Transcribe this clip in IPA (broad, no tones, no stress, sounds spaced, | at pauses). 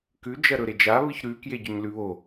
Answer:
k ʉ d͡ʒ ɐ ɾ ɵ ɾ e d͡ʒ a β ɨ ç ɾ ʉ k j e ɟ ɵ ɲ l ʉ β o